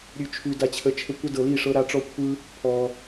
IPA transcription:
ɾʲ ʉ˦ t͡ʃʰ ʉ˦ d a˦ t͡ɕʰ ə˦ t͡ʃʰ ə˦ kʷ ə˦ d ɤ˧ l i˦˨ ʂ ɤ˦ ɾ a˦ ʈ͡ʂ ɔ˦ kʷʰ ɯ˦ | pʰ ɔ˧

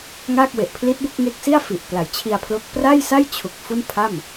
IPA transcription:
ŋ aː˥˩ k̚ w e˨˩ ʔ pʰ l i˦˥ t̚ b o˥˩ k̚ ŋ e˦˥ k̚ s i˥˩ a̯ f i˨˩ ʔ p l a˨˩ j t͡ɕʰ i˧ a̯ pʰ l o˦˥ k̚ p r a˥˩ j s a˥˩ j t͡ɕʰ u˨˩ k̚ f u˥˩ n pʰ a˥˩ m

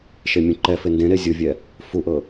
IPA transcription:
ʃ e mʲ ũ ǃ ɛ f e n d ẽ ɾ e zʲ ʊ vʲ ɛ | f u ʔ ɤ

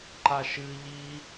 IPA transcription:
ǃ a ʃ ɨ ʎ i

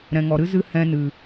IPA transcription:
ɾ ɛ̃˨ ŋ ɔ˨ ɾ ɨ˦ z ɨ˧ h ɛ̃˧ n ɨ˨

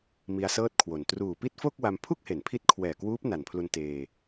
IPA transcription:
m i˧ a̯ s ɤː˥˩ t̚ kʰ w o˨˩ n t r uː˨˩ p i˥˩ t̚ f o˥˩ k̚ w a˧ m pʰ u˥˩ k̚ h e˩˦ n pʰ i˦˥ t̚ kʰ w ɛː˨˩ k w uː˦˥ p̚ n a˨˩ n pʰ l u˧ n t eː˧

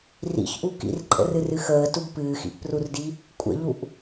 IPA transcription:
r ḭ ç ʔ u k ḭ r ǃʼ ə̰ r ɨ r ɨ x əː t u ɡ p ɨː x ḭ ʔ p r u r d i | kʷʼ ə̰ ʎ u ʔ

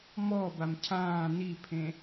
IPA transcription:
m ɔ b a m cʰ ãː n i pʰ ẽ

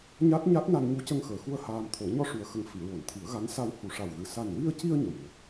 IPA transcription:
ɲ a˦˥ t̚ ɲ a˦˥ t̚ n a˧ n ɲ u˧˥ c ə˧ ŋ x əː˨˩ x u˧ ə̯ h aː˧ m t̪ʰ o˨˩˦ ɲ ɔ˧ ʂ u˨˩ ə̯ x ə˨˩ ŋ f i˨˩˨ ɹ o˨˩˨ n t̪ʰ i˨˩˦ ə̯ ɣ a˧˥ n s a˧ w h u˨˩ ʂ a˨˩ w ɣ ɨ˨˩˨ s a˨˩ n w i˧ ə̯ c i˧ ə̯ ɲ ə˨˩ m n ə˨˩ k̚

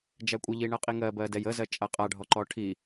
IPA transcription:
d͡ʒ æ kʷʼ ə ʎ i ɳ ɜ qʼ i ŋ ɜ b ɜ d ɛ j ə z ɜ t͡ʃʼ a qʼ a ɖʱ ɔ ǃ ɔ ʈʰ i

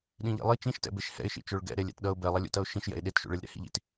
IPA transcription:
ɗ ĩ ʎ ḛ lˠ i t͡ʃ ĩ ʃ t ɛ̰ b e ʃ h ɛ̰ ɪ̯ ʃ ḭ t͡ʃ o ɭ ɡ ɛ̰ ɾ e lʲ ɛ̰ t ɗ ʌ ʊ̯ b ɛ lˠ ʌ lʲ ṵ t ʌ ʊ̯ ʃ ĩ ʃ j ɛ̰ ɪ̯ ɗ e t ʃ ṵ ɭ e lʲ ɾ ɛ̰ h ḭ ʎ ḭ t

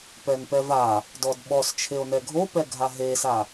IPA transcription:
p ɛ n p ɛ v a | d ɔ d ɓ ɔ s t͡ʃʰ e o̯ n ɛ ɡʱ o p ɛ ɡʱ a ɦ e s a

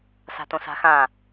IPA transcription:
s a̤ t õ s a̤ x ã

